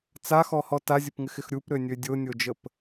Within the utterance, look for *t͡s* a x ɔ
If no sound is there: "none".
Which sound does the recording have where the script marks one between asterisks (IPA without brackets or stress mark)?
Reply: t͡s